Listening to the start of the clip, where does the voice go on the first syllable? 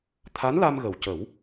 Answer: rising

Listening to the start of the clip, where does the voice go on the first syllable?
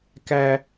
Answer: high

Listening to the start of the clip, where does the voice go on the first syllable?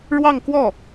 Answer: falling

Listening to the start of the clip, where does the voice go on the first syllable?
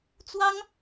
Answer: high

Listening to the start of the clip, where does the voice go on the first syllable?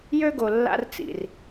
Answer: high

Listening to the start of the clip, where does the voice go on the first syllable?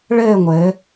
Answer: falling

